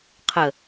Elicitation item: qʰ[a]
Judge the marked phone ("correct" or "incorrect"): incorrect